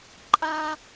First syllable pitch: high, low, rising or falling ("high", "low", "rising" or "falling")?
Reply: high